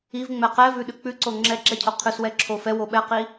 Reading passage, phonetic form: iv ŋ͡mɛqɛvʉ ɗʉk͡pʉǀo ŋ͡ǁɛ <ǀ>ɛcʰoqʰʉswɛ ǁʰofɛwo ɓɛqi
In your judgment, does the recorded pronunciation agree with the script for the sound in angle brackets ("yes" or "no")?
no